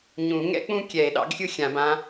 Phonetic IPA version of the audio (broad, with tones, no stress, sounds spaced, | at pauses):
ɲ ũ˨˩˦ ŋ ɛ̰˥ k͡p ũ˥ kʲ ɛ˨˩˦ e̯ ɗ ɑ̰˧˥ ɡ xʲ ɯ˥ xʲ ã˨˩˦ b ã˧˥